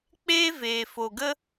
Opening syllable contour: high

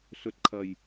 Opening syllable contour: low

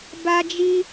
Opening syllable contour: high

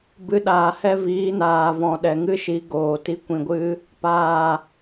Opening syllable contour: rising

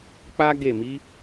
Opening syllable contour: high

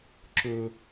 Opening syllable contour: low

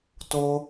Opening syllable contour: high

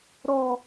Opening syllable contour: low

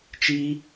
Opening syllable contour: high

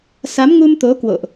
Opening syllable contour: rising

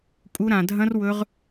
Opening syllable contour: high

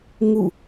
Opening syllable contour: falling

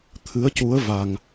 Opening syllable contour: rising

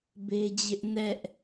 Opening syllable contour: high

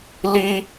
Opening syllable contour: high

